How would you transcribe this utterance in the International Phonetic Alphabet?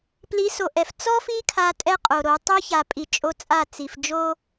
pli˨˦so˨ʔɛ˨f t͡sɔ˦fi˦ kʰa˦tʼɛ˦qʼo˨ɾo˨˦ tˤo˦ça˨pʼi˨ t͡ʃʼo˦t͡sʼa˦˨ t͡si˨fd͡ʒo˦

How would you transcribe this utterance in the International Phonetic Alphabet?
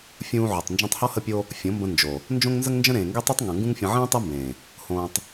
fʲũː˧ʕo˨tˤ nd͡ʒũ˧tˤhɔ˦ hə˦pʲo˦ | fʲõ˨˦mbə̃˧ nd͡ʒo˨ | nd͡ʒõ˦ŋnzə˦ŋnd͡ʒə̃˦ ɾẽː˨ŋɡe˦tˤu˦tˤ ŋõ˨ŋɡũ˦ŋfʲə̃˧ ʕẽː˦ tˤe˦mbẽː˨ | hõː˧tˤ

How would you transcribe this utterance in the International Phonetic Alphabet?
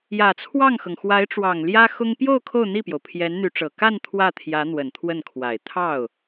jä˨˩t͡sʰwɑ˥˩ŋxɤ˩ŋ xwa˧˥ɪ̯ʈ͡ʂwɑ˨˩ŋ ljä˥xʊ˥ŋ pjo˥˧ʊ̯ kʰo˥˧ʊ̯n̪i˥˩pjo˩ʊ̯ pʰjɛ˧˥nn̪y˧˥ʈ͡ʂɤ˨˩ ka˥˧n t̪ʰwä˥˩t̪ʰjä˧˥ n̪wə˨˩nt̪ʰwə˥˩nkʰwa˨˩ɪ̯ t̪ʰɑ˥˩ʊ̯

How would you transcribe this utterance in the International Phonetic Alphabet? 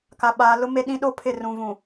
ka˨ɓaː˨ lʊ˦ me˦ɗĩ˦ ɗo˦pʰɪ˦˨rũ˨ vũ˨

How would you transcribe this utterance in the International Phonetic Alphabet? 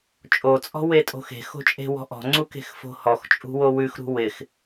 t͡ʃʼot͡sʼɔ̤ wetʼo̤xe̤xo̤ t͡ʃʼe̤wɔ̤ʔɔ̤ŋ͡ǀu ke̤xfo̤hɔxt͡ʃʼṳ wowʉxɾṳ wɪx

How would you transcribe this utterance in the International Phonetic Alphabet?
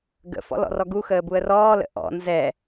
ɡə̰fɔ̰ lɔ̰rɔɡuxəː buə̯rɔːlə̰ ʔɔ̰ nzɛ

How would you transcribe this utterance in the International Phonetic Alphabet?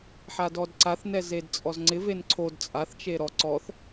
ħadɔdǀaθnɛ zedt͡sʼɔzŋ͡ǀɪven ǀʰod t͡sʼaθt͡ʃe ɾɔ ǀɔθ

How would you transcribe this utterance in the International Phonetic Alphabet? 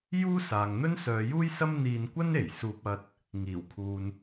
juː˥saː˨ŋ n̪ɵ˥nsœː˨˧juː˥jsɐ˥m n̪iː˧nkʷɐ˥n e˨˩jsuː˧p̚ ɐ˧t̚ | ŋiː˨˩wkʰuː˨n

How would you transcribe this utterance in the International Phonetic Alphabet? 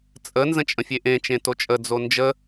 t͡sʼə nzə̃t͡ʃʼə̃fʲeʔẽ t͡ʃẽtot͡ʃʼə d͡zond͡ʒə

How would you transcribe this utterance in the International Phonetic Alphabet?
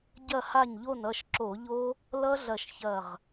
ɟɐ˥˩ha˥˩ɲʎo˥˩nʌ˥˩ʃ ǁo˧˩˧ʎo˦˥ | lʌ˦˥ɮɐ˧˩ʃçɐ˧˩ʁ

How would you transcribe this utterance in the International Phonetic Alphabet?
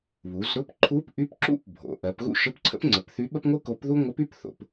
βu˩˧zɾʊ˧˥˧p ǃʰu˧˥pʔy˧˥p ǁṵ˥p bʱo̰˩˧ʔɜ˩˧pɣṵ˥ ʃə˧˥˧pǀʰə̰˥pŋ͡ǀə˩˧pθy˧˥ ɓə˥pŋʷɨ˥ko˧˥pðu˥ ŋʷə˧˥py˧˥˧pθo̰˩˧p

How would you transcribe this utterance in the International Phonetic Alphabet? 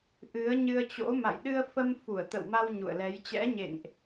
ʔɨ˨˦ə̯ɲɨ˧ə̯t͡ɕo̰˧˥ ma̰˧˨jɗɨ˧ə̯fə˧m fu˧˩ə̯t̪ə̰˧˨wma˧w ɲṵ˧˨ə̯lɛ˨˦j t͡ɕɛ̰˧˥ɲḛ˧˨ŋʔ

